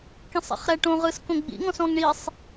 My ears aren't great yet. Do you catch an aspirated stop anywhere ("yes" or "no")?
no